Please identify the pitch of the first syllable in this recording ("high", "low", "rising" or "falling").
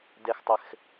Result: low